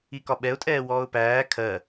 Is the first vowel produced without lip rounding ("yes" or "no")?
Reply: yes